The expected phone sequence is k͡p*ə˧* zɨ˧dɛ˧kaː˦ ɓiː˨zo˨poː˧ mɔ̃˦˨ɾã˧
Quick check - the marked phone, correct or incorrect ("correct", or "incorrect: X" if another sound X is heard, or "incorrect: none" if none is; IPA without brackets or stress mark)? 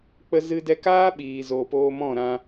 correct